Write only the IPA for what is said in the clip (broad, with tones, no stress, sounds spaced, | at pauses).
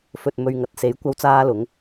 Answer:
f ɵ˨ t̚ m ɵ˨ ɥ ŋ ɐ˨˥ t̚ s e˨˥ j kʷ ɐ˥ w t͡s aː˥ l ʊ˨˥ ŋ